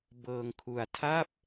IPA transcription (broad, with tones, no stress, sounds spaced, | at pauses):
b ɤː˧ ŋ kʰ u˧ a̯ tʰ a˥˩ p̚